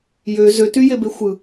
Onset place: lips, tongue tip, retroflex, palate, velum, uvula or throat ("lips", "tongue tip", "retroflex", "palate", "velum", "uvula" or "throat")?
palate